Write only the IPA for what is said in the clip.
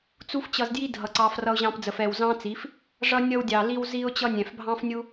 t͡s u˦ f t͡ɕ ʌ˧ z d j i˦ dʱ ʌ˨ ǀ ɑ˧ f r ʌ˧ ʊ̯ ʑ ɑ̃˧ p d͡z ə˨ f ɛ˨ w z ɑ̃˦ t͡s i˨˦ f | ʐ ʌ˧ nʲ ʌ˧ w dʲ ɑ˨ l i˧ w z i˧ ʊ̯ t͡ɕ ʌ˧ nʲ ɛ̃˨ f bʱ ɑ̃˦ f nʲ u˦

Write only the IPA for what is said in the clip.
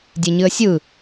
dʲ e ɲ ɨ ə̯ sʲ ɯ

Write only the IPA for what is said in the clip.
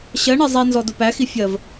ɕ ɜ ɳ e zˤ i n z ɔ d ʊ p æ x i fʲ ɜ v

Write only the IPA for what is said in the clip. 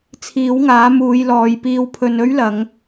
t͡sʰ iː˨˥ w ŋ aː˨˥ m uː˨˧ j l ɔː˨˧ j p iː˧ w pʰ ɵ˧ n ɵ˥ ɥ l ɐ˨˧ ŋ

